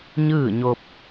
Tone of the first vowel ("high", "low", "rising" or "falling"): falling